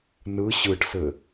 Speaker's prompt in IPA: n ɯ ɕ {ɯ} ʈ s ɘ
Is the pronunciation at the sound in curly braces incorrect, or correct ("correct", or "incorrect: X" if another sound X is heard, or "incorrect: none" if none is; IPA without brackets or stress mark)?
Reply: correct